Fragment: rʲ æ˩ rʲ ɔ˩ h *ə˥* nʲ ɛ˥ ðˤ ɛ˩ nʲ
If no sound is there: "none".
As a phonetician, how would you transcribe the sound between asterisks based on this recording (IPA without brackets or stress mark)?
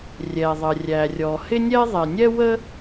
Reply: ɪ˥